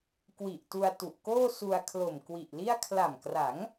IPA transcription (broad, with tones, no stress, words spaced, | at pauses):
kwi˨˩ʔtu˧a̯ tu˨˩ʔkoː˥˩ su˧a̯ kʰlo˨˩mkwi˨˩ʔli˥˩a̯ kʰla˨˩mkra˩˦ŋ